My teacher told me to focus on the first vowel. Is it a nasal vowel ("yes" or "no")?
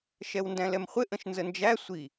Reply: no